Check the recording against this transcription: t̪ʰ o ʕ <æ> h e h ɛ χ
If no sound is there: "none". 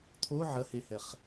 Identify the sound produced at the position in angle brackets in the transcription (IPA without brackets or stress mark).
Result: ɐ